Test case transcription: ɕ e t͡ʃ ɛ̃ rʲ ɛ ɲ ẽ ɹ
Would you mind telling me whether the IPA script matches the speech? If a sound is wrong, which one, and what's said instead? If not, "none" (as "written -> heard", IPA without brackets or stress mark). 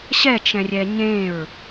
e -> ɛ